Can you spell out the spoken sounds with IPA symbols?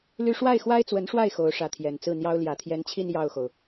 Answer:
l y˥ ʂ w a˥˩ ɪ̯ x w a˥ ɪ̯ t͡s w ə˧˥ n ʂ w a˥˩ ɪ̯ x o˧˥ ʊ̯ ʂ ä˧˥ t̪ʰ j ɛ˨˩ n t͡s ɹ̩˥˩ n̪ j ɑ˥ ʊ̯ l j ä˨˩ t̪ʰ j ɛ˧˥ n t͡ɕʰ i˥˧ n j ɑ˥˩ ʊ̯ x o˩ ʊ̯

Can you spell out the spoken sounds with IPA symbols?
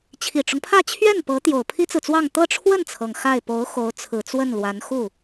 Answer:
t͡ɕʰ i˨˩ ʈ͡ʂ ʊ˦ ŋ pʰ ä˥˧ t͡ɕʰ ɥ ɛ˥˩ n p ɤ˧˥ t̪ j o˨˩ ʊ̯ pʰ i˥ t͡s ɹ̩˨ t͡s w ɑ˥˧ ŋ t̪ ɤ˥˧ ʈ͡ʂʰ w ə˥˩ n t͡sʰ ɤ˩ ŋ x a˥˩ ɪ̯ p o˧˥ ʊ̯ x o˧˥ ʊ̯ t͡sʰ ɹ̩˨˩ t͡s w ə˥˩ n l w a˧˥ n x u˥˩

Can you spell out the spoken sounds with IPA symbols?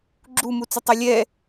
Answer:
ɡ͡ǁ u m u t͡s ɘ tˤ ɛ lʲ ɛ

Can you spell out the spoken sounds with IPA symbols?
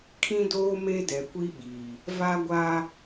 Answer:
kʰ ĩ˦ d oː˦ m e˦ d ɛ˨ kʷ i˦ ɓ i˨ | v a˦ ɡʷ a˦

